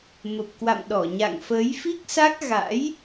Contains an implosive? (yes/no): yes